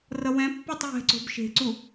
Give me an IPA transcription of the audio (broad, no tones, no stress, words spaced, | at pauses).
rʌwɛ̃pːotˤ jɛ̤ǀo̤b ʃe̤ǀu